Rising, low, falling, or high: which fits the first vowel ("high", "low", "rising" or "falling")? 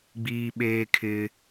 high